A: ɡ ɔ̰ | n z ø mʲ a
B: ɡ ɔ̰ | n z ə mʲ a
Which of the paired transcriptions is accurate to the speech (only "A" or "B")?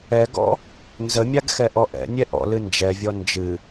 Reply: B